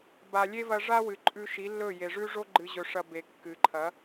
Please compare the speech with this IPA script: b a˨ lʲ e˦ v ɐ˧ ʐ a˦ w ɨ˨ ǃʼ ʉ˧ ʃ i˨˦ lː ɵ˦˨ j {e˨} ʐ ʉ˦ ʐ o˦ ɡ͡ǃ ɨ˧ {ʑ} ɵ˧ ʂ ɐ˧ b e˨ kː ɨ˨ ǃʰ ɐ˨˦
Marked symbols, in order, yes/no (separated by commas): yes, yes